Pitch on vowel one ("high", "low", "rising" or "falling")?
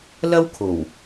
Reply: high